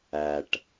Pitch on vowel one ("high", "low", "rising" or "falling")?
low